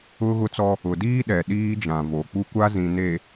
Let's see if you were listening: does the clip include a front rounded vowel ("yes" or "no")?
no